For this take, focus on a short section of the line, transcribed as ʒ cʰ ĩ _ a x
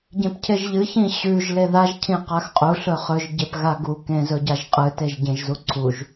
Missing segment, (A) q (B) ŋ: A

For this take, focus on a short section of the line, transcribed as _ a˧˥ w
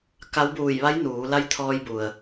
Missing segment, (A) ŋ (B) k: B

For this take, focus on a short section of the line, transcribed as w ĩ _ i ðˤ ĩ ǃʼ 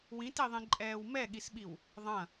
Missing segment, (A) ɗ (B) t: B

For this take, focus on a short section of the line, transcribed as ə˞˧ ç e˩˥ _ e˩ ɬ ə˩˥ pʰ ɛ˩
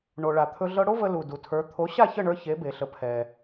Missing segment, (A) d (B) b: B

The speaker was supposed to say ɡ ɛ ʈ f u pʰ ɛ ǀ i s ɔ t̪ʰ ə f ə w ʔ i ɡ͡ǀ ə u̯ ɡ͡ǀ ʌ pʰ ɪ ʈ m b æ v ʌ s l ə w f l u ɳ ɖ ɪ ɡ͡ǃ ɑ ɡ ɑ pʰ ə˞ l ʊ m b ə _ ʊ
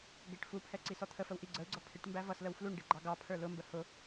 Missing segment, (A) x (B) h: B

